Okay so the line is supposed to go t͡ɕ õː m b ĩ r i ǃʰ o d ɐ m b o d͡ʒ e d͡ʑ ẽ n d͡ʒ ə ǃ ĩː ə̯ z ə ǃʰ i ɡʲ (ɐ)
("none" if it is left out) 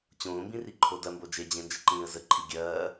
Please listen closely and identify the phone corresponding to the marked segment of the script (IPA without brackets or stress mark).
ɐː